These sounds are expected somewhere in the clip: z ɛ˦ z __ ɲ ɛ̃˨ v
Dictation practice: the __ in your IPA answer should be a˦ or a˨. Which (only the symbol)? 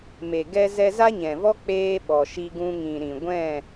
a˦